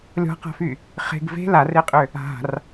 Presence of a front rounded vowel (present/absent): present